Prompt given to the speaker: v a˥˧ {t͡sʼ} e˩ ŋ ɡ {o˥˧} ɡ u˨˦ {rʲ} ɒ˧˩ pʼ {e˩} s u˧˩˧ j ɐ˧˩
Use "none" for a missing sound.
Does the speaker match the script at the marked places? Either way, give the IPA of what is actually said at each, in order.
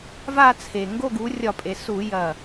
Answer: t͡sʰ, o˥˧, rʲ, e˩

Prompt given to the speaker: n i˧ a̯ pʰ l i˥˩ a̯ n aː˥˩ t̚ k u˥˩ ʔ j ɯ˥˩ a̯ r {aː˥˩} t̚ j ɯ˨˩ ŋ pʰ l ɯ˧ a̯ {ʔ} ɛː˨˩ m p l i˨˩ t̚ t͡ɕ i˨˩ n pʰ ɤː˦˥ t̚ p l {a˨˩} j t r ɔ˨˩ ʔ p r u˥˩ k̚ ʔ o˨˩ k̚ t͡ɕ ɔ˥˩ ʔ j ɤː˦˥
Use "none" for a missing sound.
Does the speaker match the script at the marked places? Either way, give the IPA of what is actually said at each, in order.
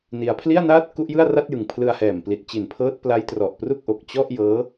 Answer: a˥˩, h, a˦˥

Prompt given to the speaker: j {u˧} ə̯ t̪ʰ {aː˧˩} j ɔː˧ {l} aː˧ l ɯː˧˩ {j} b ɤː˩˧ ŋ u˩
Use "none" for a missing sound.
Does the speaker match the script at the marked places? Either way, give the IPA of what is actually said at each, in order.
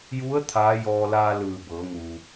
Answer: u˧˥, aː˧˥, l, none

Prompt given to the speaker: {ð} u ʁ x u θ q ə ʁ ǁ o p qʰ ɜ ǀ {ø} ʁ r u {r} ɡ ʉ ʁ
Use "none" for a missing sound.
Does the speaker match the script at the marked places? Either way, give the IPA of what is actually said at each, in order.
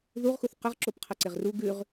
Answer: ð, e, none

